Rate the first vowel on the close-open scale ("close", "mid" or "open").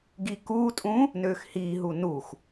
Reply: close